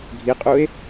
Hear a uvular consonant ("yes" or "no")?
yes